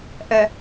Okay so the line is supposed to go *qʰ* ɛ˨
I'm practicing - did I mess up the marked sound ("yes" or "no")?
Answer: yes